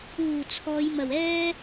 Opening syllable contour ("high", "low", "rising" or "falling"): low